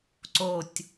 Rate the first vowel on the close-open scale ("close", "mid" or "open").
mid